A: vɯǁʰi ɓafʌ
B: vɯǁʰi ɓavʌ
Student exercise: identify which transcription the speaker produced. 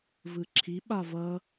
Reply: B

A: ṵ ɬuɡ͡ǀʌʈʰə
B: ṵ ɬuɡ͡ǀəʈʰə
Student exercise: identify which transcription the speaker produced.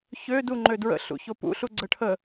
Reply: B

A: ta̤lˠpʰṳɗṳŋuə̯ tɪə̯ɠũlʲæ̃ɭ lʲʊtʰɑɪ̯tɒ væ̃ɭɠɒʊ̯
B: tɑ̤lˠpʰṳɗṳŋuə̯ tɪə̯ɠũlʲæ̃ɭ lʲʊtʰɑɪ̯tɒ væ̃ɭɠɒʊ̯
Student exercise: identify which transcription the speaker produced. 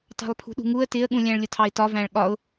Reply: B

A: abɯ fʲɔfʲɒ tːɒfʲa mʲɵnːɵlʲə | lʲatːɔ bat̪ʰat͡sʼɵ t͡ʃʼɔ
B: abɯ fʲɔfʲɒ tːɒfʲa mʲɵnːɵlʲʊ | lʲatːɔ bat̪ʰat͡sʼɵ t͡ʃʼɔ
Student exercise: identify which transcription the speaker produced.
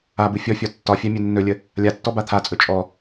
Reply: A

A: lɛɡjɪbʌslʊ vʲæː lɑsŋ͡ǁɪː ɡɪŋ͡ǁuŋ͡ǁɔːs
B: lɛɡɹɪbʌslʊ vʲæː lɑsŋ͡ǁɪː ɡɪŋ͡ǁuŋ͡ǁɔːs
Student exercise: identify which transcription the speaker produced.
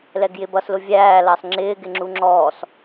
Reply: A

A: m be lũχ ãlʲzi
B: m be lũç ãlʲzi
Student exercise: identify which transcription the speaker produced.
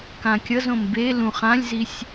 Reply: A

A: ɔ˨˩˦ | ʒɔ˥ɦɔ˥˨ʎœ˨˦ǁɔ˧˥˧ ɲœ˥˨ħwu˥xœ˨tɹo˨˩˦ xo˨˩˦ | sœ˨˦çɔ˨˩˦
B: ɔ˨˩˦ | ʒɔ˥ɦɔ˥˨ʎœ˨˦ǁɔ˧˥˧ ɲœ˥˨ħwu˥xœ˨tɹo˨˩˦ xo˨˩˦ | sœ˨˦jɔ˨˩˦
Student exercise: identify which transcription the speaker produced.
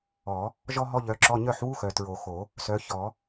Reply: A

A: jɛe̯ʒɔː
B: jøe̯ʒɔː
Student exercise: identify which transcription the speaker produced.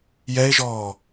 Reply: A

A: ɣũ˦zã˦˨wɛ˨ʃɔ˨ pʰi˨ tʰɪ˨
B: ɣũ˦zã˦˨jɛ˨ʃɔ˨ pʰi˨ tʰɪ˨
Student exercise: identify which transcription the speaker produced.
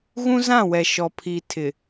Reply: A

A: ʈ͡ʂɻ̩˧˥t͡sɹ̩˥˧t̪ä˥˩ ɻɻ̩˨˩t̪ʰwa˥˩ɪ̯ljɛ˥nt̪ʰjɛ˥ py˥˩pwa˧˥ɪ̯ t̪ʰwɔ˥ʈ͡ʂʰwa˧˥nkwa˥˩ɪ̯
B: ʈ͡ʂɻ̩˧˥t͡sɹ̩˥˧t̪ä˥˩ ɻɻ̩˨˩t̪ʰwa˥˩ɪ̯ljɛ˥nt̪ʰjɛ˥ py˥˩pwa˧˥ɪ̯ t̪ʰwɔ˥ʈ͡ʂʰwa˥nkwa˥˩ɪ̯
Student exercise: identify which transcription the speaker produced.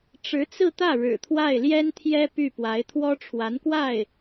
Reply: A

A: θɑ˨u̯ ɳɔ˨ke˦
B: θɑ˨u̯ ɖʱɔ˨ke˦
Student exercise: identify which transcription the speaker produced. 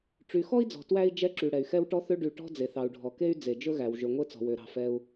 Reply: B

